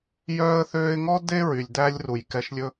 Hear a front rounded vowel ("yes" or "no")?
yes